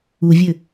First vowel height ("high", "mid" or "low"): high